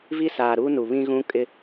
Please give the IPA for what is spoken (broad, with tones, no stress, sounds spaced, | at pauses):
v i˦ s aː˨ ɾ uː˦ n u˨ β ĩ˦ ɣ ũ˦ kʼ ɪ˦